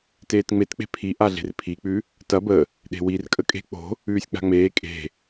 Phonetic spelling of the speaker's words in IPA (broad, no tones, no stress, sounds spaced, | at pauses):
t eː t ŋ͡m e t k͡p e̤ pʰ i ʔ a ɮ e̤ r pʰ i k͡p ʉ | t ɐ b ə | ɗ e̤ w i r kʼ ə kʼ e̤ k͡p o̤ | ʉː sʲ k͡p a̤ ŋ͡m eː kʼ e̤